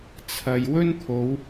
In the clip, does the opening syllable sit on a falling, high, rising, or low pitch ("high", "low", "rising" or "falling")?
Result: low